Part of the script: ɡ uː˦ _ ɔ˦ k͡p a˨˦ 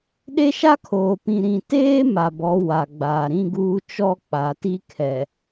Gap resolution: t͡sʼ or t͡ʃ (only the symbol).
t͡ʃ